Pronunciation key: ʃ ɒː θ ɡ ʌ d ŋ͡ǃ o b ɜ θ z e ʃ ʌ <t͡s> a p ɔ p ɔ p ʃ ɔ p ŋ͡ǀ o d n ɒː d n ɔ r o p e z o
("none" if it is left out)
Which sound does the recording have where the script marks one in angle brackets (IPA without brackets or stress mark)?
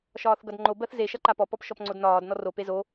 ǃ